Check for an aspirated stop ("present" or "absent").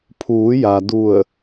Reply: present